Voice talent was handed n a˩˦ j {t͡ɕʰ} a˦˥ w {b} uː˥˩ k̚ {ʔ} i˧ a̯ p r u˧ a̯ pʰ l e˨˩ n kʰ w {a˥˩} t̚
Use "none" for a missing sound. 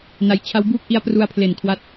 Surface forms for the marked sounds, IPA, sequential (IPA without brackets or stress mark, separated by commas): t͡ɕʰ, b, ʔ, a˦˥